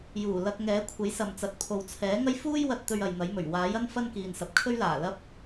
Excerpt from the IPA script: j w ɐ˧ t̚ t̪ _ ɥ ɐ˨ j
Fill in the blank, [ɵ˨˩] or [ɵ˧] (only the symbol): ɵ˧